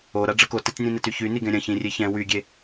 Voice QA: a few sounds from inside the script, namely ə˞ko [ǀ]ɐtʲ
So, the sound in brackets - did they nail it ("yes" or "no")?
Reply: no